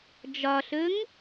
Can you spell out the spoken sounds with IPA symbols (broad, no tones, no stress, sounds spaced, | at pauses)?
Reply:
d͡ʒ ɒ ɬ ɵ ŋ